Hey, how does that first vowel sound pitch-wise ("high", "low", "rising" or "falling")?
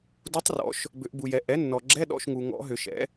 rising